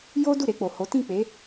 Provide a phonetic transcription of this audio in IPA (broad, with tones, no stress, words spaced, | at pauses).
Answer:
jo˦ du˦˨ɾe˧k͡po˨ho˨˦ tĩ˦˨k͡pe˨˦